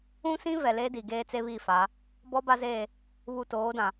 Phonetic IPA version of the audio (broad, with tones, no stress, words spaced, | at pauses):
ũ˦sĩ˦ vɛ˨le˦di˨ɡeː˦ t͡se˦βiː˦˨fa˨˦ | bɔ˦ba˦zeː˦˨ | βu˨toː˨˦dã˨